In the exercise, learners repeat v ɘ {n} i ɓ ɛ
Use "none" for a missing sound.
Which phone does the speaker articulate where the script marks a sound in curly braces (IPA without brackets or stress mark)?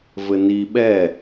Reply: n